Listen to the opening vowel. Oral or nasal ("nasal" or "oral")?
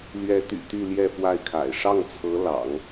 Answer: oral